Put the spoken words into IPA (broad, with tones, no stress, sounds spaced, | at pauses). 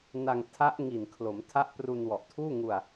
n a˧ ŋ tʰ a˦˥ ʔ ŋ i˨˩ n kʰ l o˩˦ m tʰ a˦˥ ʔ p r u˧ n w ɔ˨˩ ʔ tʰ uː˥˩ ŋ u˧ a̯